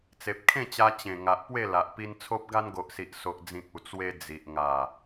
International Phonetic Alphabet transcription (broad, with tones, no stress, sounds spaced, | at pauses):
t͡s e˨ p̚ kʰ ẽ˥˧ t͡ɕ a˧ t͡ɕ ẽ˨˩ ŋ a˨ ʔ p w e˥˧ l a˨ ʔ p i˧ n t͡sʰ o˦ p̚ ɡ a˧ n ɡ o˨ ʔ s i˨ ʔ s o˨ ʔ d͡z ĩ˨ k̚ u˨˩ t͡s w e˧ d͡z i˨ ʔ ŋ a˨˩